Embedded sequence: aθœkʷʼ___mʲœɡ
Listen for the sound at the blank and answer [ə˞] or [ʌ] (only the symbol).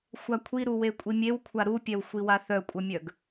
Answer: ʌ